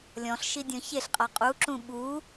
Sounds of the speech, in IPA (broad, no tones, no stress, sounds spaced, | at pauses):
lʲ ɔ̃ ɬ ʃ i dʲ ɔ̃ ç e ɬ qʼ a qʼ u ǁ ũ ɓ u